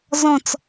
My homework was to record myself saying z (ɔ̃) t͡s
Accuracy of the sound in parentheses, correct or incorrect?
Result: correct